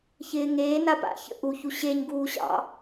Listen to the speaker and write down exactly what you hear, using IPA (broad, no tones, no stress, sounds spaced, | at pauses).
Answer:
ç ɪː ŋ eː n a p a̰ ç ə̰ ʔ u ç u ɕ e ɲ ɡ uː ɕ ɑ̰